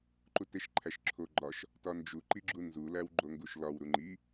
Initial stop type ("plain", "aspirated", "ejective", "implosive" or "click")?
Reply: click